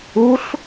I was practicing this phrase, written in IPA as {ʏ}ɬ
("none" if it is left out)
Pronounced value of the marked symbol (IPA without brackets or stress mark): u